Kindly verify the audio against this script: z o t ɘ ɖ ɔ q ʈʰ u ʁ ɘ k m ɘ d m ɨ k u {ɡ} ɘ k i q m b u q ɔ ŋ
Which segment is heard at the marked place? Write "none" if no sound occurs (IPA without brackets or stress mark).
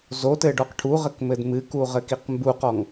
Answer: ʁ